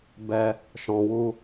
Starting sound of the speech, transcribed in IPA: b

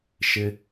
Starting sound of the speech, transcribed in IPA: ʃ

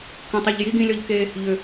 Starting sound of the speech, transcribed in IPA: k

